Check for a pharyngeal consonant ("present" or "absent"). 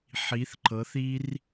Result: present